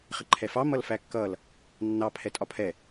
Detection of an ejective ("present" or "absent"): present